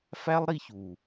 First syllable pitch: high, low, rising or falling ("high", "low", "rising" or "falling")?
high